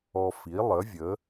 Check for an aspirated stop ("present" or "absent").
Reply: absent